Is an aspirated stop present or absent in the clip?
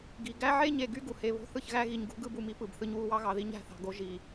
absent